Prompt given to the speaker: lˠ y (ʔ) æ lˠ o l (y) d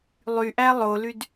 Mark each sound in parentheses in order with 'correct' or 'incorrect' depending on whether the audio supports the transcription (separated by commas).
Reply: correct, correct